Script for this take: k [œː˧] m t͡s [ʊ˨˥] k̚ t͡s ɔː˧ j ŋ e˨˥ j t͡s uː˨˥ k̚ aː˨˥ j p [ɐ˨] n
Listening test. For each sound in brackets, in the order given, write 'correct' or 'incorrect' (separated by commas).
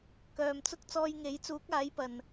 incorrect, incorrect, correct